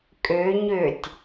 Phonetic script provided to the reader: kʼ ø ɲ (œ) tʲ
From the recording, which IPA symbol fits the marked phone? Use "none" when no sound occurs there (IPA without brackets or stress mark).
ø